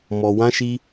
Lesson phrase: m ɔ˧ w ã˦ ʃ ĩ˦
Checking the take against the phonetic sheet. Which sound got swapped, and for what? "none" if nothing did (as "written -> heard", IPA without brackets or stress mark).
ĩ˦ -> i˦